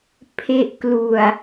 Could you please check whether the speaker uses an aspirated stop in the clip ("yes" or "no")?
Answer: yes